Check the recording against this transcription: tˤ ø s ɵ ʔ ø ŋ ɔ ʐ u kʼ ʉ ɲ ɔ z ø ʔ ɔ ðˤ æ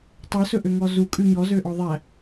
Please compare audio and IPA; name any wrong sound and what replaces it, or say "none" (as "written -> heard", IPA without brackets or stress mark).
ʐ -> z